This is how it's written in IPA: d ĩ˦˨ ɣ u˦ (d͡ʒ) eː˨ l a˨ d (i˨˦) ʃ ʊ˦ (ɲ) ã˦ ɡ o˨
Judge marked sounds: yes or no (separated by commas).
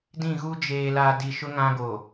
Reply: yes, no, no